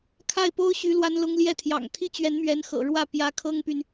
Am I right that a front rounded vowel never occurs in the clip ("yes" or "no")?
no